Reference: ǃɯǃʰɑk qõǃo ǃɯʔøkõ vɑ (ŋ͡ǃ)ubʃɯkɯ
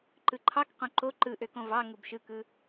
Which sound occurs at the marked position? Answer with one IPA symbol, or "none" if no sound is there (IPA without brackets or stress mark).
ŋ